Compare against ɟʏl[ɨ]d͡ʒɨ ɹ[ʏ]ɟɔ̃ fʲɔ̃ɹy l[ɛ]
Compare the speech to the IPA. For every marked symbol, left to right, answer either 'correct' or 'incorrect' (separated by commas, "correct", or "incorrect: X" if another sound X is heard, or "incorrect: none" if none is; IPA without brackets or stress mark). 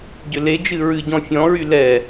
incorrect: e, incorrect: ɨ, correct